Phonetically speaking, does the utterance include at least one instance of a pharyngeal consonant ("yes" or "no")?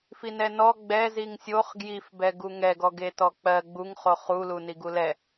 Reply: no